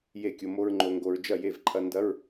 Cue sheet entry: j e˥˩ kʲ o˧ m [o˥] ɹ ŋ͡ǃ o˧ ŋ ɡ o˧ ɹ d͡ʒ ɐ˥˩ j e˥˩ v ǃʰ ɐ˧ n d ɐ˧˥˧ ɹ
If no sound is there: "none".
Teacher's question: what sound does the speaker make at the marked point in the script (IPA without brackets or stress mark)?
o˥